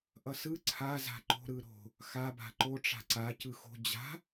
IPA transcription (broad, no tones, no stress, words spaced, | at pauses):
ʔʌsɯ ǀʰaza̤ ǃo̤ɾɯ ɾo̤ | xaba̤ ǃo ʈ͡ʂa̤ǀa cɯxo̤ d͡ʑa̤